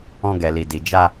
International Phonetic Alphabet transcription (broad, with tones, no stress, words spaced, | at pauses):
ɔ̃˧ɡɛ˨li˨ di˨d͡ʒa˧